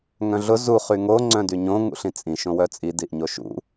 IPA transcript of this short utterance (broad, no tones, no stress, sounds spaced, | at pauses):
ŋ œ̃ ɮ ʊ z u χ y ŋ o ŋ͡ǀ œ̃ d y ɲ õ ŋ ṵ ɬ ĩ t͡sʼ ĩ ʃ õ w œ t͡sʼ i d i ʔ ɲ o ʃ ṵ